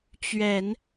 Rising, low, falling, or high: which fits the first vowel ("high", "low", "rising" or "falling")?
low